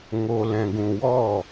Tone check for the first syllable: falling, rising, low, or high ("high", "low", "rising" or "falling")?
low